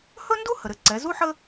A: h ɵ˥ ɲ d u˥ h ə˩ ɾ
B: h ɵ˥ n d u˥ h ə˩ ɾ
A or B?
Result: B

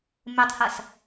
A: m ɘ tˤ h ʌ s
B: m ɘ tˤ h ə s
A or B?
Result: A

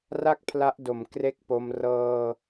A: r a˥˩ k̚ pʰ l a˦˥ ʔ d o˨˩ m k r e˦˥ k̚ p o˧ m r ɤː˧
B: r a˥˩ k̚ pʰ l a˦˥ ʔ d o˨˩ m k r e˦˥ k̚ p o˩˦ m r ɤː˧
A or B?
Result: A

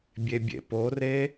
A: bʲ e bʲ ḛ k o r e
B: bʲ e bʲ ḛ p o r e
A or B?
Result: B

